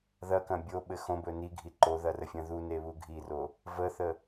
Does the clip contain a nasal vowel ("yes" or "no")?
yes